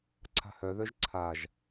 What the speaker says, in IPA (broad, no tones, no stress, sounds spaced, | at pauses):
ǀʰ a̤ h œ ð œ ʒ ǀʰ a ʒ